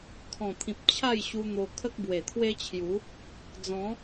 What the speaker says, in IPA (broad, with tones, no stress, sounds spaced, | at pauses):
kʰ ɔ̃˨˩ t̪ʰ ĩ˨ p̚ t͡ɕʰ a˥˧ j ɕ u˧ n̪ o˧ kʰ ə˦ k̚ b w e˨˩ t̪ʰ w e˦ t͡ɕʰ j u˨˦ | d͡z ɔ̃˨˦